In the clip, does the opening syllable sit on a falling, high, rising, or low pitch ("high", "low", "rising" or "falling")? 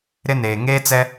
high